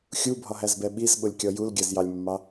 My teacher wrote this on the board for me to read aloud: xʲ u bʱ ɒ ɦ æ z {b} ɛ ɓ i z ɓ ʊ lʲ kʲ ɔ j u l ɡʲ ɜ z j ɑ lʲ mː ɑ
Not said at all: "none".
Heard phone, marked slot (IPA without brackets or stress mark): b